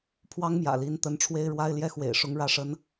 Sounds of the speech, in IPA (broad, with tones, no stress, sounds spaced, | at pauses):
pʰ w ɑ˥ ŋ m j ä̰˨˩ l i˧˥ n t̪ ə˧˥ n ʈ͡ʂʰ w e˥ ɪ̯ ɻ w a˥ ɪ̯ l j ɛ˥ x w ḛ˨˩ ɪ̯ ʂ ʊ˥ ŋ ɻ ä˥˩ ʂ ə˥ n